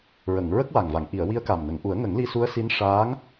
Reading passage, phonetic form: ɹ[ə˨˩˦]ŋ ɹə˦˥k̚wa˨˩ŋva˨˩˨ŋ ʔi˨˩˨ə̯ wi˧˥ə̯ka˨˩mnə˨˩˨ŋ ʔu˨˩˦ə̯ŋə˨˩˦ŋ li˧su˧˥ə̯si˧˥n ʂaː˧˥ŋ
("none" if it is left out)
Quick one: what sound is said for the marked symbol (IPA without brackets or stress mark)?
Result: ə˨˩˨